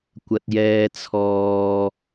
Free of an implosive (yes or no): yes